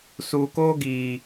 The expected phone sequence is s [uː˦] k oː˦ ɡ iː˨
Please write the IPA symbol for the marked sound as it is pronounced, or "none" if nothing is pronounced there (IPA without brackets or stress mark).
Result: uː˨